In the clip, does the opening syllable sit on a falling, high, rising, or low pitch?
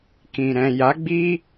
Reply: low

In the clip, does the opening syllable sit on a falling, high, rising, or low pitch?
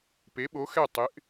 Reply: rising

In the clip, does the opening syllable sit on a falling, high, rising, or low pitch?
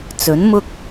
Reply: rising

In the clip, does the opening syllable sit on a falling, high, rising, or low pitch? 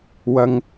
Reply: high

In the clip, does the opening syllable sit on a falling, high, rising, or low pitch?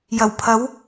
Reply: low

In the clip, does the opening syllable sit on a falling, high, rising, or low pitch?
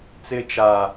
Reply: high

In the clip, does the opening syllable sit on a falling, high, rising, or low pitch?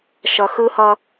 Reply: low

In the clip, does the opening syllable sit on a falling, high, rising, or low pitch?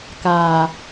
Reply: low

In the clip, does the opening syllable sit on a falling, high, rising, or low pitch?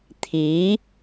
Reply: rising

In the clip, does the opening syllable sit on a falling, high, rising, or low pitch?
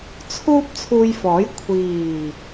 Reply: high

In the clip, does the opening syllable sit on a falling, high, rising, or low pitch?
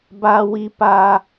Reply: high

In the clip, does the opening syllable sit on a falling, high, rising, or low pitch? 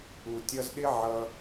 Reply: low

